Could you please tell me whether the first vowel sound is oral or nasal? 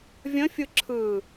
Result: nasal